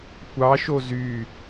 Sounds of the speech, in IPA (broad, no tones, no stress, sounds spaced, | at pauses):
kʷ ɑ ʃ o z y